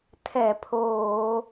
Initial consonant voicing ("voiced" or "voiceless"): voiceless